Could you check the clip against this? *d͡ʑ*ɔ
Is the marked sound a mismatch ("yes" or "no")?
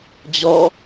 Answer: no